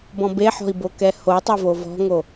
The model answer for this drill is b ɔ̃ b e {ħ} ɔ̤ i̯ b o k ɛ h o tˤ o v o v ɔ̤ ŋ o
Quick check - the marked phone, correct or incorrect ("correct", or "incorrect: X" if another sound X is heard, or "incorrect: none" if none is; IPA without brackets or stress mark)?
correct